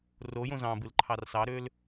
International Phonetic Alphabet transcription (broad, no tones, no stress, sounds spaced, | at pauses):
r o j õ z ɑ̃ b ɯ l ǃʰ ɑ r s ɑ ɾ ø l